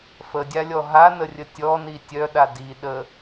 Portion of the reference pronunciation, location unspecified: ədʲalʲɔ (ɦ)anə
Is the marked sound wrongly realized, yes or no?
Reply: no